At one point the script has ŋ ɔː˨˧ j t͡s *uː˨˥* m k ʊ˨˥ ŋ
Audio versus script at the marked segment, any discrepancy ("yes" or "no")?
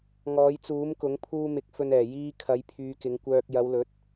no